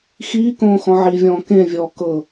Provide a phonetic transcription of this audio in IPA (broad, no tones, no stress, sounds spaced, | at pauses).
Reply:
x iː k õː x ɔ̃ ʕ i vʲ ɔ̃ː k ẽ vʲ ɔː k ɤ